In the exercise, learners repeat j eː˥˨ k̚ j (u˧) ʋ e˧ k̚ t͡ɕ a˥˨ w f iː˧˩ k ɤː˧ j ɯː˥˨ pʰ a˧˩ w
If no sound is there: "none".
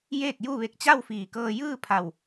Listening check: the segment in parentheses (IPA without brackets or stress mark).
u˥˨